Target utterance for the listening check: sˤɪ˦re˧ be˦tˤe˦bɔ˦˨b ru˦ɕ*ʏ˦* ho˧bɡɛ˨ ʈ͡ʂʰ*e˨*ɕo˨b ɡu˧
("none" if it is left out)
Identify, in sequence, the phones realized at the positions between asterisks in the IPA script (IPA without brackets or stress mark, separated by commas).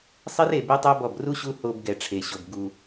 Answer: u˦, e˨